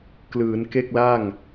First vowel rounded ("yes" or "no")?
no